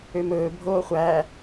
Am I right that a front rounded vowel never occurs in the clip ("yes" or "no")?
no